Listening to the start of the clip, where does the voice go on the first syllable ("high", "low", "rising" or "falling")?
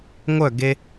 falling